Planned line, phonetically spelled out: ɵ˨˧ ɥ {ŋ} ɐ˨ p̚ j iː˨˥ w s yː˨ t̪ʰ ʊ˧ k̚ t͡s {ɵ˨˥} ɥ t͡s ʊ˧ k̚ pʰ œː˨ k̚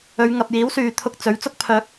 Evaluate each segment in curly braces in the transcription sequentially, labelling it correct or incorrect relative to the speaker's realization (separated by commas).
correct, correct